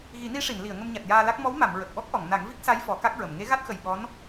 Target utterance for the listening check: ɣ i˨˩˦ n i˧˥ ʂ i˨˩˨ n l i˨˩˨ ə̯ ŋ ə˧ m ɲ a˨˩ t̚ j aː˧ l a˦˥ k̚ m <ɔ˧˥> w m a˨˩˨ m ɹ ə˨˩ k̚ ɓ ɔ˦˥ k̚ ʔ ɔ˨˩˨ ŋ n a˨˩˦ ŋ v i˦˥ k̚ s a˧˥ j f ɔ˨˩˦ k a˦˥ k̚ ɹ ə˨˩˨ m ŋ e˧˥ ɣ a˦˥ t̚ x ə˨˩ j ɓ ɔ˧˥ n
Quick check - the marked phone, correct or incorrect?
correct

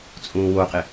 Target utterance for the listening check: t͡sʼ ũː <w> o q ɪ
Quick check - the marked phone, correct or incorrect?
correct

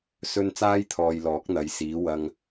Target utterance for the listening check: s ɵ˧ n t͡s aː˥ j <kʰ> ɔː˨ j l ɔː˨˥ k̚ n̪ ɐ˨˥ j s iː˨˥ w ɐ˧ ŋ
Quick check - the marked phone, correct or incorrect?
incorrect: t̪ʰ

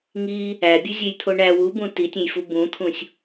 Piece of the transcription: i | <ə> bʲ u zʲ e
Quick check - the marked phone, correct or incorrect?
incorrect: æ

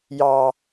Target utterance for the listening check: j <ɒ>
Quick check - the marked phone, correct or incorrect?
incorrect: ɑ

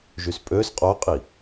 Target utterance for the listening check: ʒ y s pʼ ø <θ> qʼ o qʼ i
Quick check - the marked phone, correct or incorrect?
incorrect: s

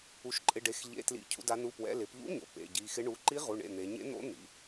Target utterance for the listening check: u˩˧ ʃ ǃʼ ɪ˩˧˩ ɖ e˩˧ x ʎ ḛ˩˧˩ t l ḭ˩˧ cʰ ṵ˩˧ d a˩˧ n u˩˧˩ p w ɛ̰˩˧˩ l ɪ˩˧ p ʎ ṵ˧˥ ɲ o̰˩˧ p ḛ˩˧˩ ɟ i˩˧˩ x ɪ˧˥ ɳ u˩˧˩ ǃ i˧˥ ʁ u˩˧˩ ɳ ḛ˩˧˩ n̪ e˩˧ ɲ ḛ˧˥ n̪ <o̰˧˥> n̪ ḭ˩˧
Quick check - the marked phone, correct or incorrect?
correct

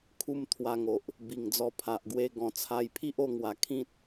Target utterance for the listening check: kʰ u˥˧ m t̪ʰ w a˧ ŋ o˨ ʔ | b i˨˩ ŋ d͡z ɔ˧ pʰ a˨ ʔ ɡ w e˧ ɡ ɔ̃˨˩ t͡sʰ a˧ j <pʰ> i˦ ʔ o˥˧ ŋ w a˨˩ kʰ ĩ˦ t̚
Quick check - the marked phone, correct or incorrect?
correct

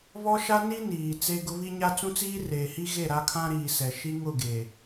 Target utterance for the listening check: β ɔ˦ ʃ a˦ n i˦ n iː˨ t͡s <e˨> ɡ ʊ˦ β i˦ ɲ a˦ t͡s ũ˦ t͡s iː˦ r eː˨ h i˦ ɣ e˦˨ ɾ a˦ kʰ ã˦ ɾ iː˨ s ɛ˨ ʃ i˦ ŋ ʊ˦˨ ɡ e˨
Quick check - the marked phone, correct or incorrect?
incorrect: e˦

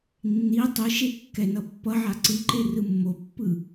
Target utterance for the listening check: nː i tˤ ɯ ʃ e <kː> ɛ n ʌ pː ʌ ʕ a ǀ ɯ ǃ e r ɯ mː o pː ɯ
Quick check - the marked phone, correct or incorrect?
correct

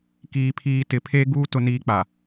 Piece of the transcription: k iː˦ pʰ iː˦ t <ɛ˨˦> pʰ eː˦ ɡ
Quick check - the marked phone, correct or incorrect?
incorrect: ɪ˨˦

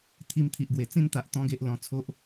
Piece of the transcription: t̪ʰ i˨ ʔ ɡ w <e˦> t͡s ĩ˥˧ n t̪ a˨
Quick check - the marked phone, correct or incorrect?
incorrect: e˨˩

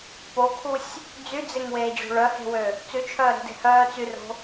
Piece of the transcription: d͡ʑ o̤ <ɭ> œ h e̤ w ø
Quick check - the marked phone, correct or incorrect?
correct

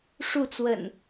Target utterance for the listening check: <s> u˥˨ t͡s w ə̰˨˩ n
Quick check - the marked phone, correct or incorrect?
incorrect: ʂ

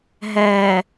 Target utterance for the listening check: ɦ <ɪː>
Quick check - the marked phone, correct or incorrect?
incorrect: ɛː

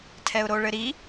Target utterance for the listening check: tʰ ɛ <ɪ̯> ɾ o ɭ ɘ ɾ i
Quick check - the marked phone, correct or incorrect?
incorrect: ʊ̯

